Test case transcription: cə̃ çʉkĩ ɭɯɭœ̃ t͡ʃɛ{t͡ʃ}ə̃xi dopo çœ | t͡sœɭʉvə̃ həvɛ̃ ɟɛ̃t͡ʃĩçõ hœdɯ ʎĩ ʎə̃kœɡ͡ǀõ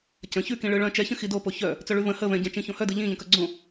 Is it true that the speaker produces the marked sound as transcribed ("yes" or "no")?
no